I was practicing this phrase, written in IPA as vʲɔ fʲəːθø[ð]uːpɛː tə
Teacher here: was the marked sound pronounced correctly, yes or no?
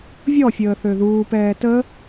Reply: yes